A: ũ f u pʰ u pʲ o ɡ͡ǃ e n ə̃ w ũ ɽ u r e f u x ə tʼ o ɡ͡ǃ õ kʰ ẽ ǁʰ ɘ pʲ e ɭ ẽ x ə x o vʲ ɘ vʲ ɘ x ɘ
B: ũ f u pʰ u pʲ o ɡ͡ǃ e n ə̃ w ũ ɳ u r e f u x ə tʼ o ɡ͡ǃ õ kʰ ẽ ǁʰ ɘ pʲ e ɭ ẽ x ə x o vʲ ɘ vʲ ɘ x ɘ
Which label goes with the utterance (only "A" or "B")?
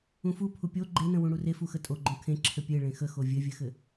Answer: A